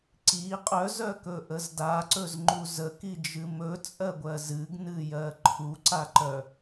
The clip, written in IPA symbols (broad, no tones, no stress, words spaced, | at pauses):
ǀi qʼœzœkɵʔəz daǀɵzŋ͡ǃu zəkid͡ʒɨ mɵt͡sʼɜɡʷɜ zɨɡnɨjɜ ǃʰuǀaǃœ